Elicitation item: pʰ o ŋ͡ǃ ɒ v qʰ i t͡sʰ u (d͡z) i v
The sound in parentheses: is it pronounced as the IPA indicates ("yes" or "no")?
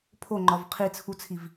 no